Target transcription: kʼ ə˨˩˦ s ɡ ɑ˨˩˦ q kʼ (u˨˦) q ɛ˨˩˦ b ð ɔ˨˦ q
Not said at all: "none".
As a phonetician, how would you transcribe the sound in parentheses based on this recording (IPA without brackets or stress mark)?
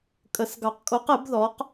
o˨˦